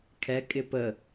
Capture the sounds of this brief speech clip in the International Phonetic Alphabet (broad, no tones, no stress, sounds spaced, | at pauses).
kʰ ɛ kʼ ɪ p ə